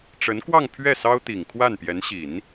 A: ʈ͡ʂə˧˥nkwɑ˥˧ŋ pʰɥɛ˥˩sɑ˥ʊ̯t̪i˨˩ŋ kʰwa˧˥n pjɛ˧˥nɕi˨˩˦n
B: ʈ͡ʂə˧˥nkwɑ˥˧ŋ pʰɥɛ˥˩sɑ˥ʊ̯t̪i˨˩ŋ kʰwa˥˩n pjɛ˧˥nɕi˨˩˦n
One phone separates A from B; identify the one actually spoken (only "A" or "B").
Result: B